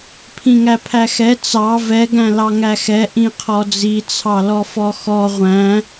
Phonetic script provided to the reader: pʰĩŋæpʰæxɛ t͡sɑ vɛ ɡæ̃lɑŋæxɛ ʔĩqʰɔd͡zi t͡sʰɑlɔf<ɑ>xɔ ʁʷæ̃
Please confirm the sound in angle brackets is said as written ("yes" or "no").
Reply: no